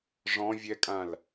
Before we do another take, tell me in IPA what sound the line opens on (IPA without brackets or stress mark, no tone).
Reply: ʐ